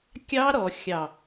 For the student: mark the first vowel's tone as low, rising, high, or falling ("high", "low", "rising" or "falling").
high